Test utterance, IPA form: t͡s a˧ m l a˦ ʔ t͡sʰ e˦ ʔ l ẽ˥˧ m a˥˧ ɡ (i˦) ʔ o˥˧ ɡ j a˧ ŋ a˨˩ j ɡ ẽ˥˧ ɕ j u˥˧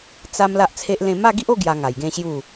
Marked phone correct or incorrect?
correct